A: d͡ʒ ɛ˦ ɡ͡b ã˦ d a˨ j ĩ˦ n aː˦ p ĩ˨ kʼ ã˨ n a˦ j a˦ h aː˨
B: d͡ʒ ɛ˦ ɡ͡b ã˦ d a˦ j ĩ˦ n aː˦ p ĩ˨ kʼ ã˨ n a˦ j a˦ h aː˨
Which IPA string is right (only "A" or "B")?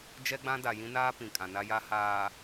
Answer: A